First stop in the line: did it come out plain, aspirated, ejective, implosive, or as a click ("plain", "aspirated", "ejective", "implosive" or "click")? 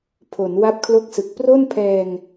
aspirated